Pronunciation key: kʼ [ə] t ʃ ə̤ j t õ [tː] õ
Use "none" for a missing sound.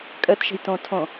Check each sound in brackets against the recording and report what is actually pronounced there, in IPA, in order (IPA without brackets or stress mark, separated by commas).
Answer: ə, tʰ